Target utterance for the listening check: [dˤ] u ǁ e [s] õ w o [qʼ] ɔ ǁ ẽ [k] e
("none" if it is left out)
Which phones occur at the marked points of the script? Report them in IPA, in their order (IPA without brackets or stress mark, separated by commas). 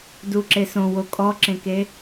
d, s, kʼ, k